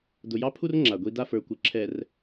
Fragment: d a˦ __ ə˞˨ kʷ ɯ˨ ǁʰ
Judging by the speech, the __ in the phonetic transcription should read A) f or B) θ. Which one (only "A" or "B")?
A